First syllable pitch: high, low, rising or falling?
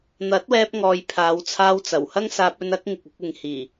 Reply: rising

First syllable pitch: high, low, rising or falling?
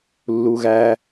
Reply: low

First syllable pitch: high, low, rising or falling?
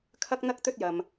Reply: high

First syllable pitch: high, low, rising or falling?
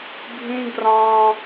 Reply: high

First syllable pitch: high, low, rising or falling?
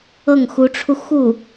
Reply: falling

